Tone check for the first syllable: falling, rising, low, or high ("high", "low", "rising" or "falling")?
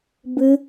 high